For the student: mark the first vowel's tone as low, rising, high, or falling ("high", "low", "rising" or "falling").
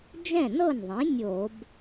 falling